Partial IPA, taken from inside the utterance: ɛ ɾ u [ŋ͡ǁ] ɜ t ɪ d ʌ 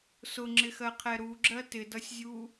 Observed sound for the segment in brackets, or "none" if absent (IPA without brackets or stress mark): ɡ͡ǁ